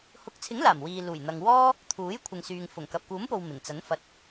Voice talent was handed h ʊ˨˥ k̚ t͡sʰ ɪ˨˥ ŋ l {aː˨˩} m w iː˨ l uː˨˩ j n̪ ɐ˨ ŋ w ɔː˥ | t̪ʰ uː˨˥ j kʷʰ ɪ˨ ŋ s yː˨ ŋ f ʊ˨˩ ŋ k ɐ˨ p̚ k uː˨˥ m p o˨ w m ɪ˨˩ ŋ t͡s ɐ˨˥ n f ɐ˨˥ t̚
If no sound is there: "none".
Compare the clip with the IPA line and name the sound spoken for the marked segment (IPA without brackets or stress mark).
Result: aː˨˩